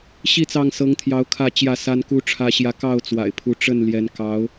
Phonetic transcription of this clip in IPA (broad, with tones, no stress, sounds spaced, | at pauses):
ɕ i˥˨ t͡s ɑ˥˨ ŋ s ɤ˨˦ ŋ t̪ʰ j ɑ˨˦ ʊ̯ kʰ ä˥˨ t͡ɕ j ä˥˨ s a˦ n k u˦ ʈ͡ʂʰ ä˦ ɕ j ä˦ k ɑ˥˨ ʊ̯ t͡s w a̰˨˩ ɪ̯ pʰ u˨˦ ʈ͡ʂ ə˥˨ n l j ɛ˨˦ n k ɑ˨˦ ʊ̯